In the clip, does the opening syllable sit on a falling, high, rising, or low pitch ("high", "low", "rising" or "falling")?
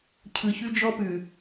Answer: low